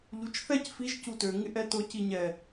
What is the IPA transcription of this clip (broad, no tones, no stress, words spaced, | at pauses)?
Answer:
ʎut͡ʃθɛc fiʒ cutø ŋɪʔɛtʊ ciɲɛ